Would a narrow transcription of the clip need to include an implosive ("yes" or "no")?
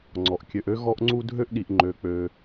yes